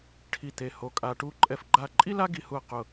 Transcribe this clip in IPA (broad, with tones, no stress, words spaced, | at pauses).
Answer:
ʈʰi˥˧t̪e˥˧ ho˥kʼa˥ ʈu˥ ǃʼɛ˥˧fɡ͡ǃa˥˧ ǃʼi˥la˥ ɡi˥hu˥˧ɐ̯qʊ˥˧